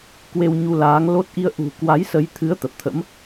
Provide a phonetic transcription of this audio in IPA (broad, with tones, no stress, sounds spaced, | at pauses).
k w e˧ w ɲ u˧ l aː˨˦ ŋ l o˦˥ t̚ ʔ i˧ ə̯ ʔ ṳ˨˩ k w a˨˦ j s ə˨˦ j t̪ʰ ɨ˨˦ ə̯ t̪ ə˨˩ p̚ t̪ʰ ə̰˧˥ m